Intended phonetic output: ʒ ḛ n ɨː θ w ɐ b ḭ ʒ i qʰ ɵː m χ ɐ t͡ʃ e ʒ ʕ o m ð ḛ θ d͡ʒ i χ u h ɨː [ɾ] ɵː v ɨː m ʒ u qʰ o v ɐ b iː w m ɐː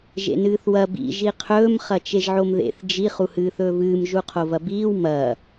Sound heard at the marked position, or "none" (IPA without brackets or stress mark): θ